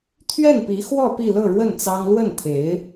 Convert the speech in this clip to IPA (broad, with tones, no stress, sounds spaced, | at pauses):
t̪ʰ ɥ ɛ˥˩ n p i˧˥ x w ɔ˥˧ p i˥˧ l ɤ˥˧ ɻ w ə˥˩ n t͡s ɑ˥ ŋ l w ə˥˩ n t̪ʰ e˧˥ ɪ̯